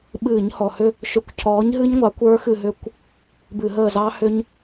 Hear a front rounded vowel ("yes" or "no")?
yes